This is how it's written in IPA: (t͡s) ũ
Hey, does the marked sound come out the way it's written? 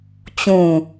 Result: no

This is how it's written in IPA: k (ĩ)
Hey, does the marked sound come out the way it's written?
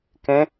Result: no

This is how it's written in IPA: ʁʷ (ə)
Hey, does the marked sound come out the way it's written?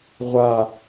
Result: no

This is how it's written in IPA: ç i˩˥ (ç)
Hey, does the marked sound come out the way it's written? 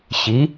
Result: no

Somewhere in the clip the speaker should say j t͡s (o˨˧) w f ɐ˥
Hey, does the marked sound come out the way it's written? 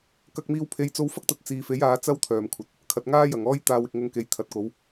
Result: no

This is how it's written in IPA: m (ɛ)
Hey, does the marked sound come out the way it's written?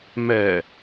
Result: yes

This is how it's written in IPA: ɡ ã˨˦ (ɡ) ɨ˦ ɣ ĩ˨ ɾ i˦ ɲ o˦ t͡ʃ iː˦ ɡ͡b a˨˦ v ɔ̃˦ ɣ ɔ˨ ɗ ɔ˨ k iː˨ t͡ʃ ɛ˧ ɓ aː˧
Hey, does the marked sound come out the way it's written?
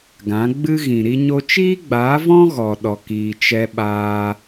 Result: no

